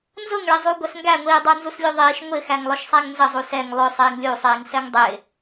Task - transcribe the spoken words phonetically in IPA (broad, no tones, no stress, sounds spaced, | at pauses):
n z ʊ ŋ ɭ ɪ zˤ u ɡʷ ɛ s ŋ ɡ æ ŋʷ iː dˤ ə˞ n z u s lʲ u ðˤ iː ʃ ŋʷ ɪ x æ ŋ lˠ ʊ ʃ sˤ æ ŋ n z ə zˤ u s ɛ ŋ lˠ ʊ sˤ iː ŋ lʲ u sˤ iː ŋ s ɛ ŋ dˤ ɪː